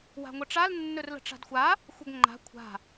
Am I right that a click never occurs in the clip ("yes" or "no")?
no